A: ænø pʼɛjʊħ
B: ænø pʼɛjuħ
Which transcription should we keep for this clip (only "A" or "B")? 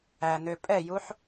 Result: B